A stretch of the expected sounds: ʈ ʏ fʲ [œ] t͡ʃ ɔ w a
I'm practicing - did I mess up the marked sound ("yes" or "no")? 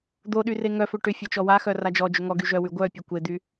no